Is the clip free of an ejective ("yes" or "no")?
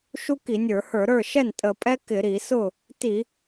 no